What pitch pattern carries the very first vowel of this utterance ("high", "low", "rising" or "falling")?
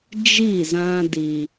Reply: falling